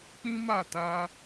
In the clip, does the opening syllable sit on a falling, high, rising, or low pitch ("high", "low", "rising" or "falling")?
high